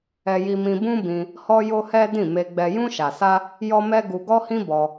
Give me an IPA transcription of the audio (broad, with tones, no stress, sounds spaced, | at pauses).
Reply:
ɛ˧ j i˧ m ĩ˧ b ũ˦ b ĩ˧ | h ɔ˦ j o˦ h ɛ˦ d ĩ˦˨ m e˧ ɡ͡b ɛ˧ j ũ˧ ʃ a˨ s a˧ | j ɔ˦ m ɛ˦ ɡ u˧ ɡ ɔ˦ h ĩ˦ b ɔ˧